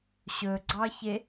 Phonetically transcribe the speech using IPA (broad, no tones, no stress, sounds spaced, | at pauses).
ɕ ɵ ɡ͡ǀ ɑ ç e